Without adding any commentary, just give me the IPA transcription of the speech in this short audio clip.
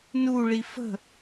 n u ɭ i f ə̤

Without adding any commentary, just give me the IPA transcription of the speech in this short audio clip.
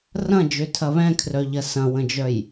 r ɐ̃ d͡ʒ ø tʰ ɐ β ɛ̃ kʰ r œ ʎ ɐ s ɐ̃ w ə̃ d͡ʒ œ j

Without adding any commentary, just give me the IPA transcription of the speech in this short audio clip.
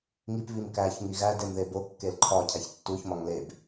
ŋ i p β i m k æ ç ŋ i ɣ æ d e m ð e b o kː e l ǃʰ ɒ cʰ æ ç tː u ç m ɒ ŋ l e b

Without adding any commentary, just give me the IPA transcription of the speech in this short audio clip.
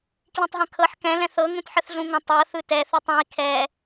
k l ĩ tˤ ɦ ə̃ kʰ ɤ ħ k ɛ̃ l ɛ̃ θ ɤ ŋ ũ t ħ ə θ ɮ ũ ŋ ə̃ tˤ ɤ θ ɯ t ɛ θ u tˤ ũ i̯ kʰ ɛ

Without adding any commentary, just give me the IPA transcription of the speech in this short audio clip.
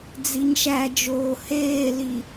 d͡z i ɲ ʃ æ d͡ʒ oː h eː l i

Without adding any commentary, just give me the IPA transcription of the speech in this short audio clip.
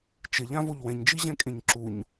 t͡ʃ ɪ ʎ ã v o ʎ w ɛ̃ ɲ d͡ʒ i ʑ ɛ̃ kʼ ẽ ɲ ǁ u ɲ

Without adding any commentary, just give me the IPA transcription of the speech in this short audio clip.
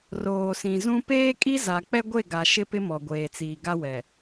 r oː˨ s ĩ˨ z ũ˦ p eː˦ kʼ i˦ z a˨ k͡p ɛ˦ ɡʷ e˦˨ ɡ a˨ ʃ ɪ˦ p ɪ˦ m ɔ˨ ɡʷ eː˨ t͡s iː˨ ɡ a˦ w ɛ˨

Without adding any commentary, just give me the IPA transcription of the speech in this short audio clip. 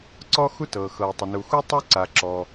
ǀ ɔ˥ x u˥ t ɤː˩ x ɤː˩ tˤ ʊ˩ n u˩ x u˥ tˤ u˥ ǀ a˩ ǁ ɔ˩

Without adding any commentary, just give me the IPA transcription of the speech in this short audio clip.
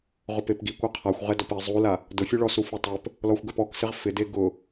ʁ ʊ p e p ɡ i kʷ a qʰ a xʷ ʁ ɛ d ɔ p ɪ zˤ u l a | d ʊ fʲ u ɭ ɔ s u f u tˤ e p | l ɔ xʷ ɡ ɛ p ɔ k s ɪ ʁ f ɪ d e ɡ ʊ

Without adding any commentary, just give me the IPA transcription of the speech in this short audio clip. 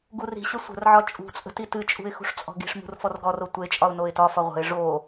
ɡ u r i̤ ɕ ə sʷ ə̤ r ʕ ɒ t͡ʃʼ ṳ t͡sʼ ə̤ t i t ɨ t͡ʃʼ ṳ ɪ̯ x ṳ ʂ t͡sʼ ɔ̤ ɡ i̤ ʂ m ṳ r f ɔ r ɡ ɔ r o tʷ e t͡ʃʼ ɒ ʊ̯ n o ɪ̯ t ɒ f ɒ ʁʷ ə̤ ɪ̯ ʐ o

